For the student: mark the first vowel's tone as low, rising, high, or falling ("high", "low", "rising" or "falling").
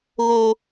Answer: low